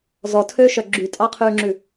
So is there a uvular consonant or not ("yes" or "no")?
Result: yes